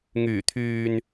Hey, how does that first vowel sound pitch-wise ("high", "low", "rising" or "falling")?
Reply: low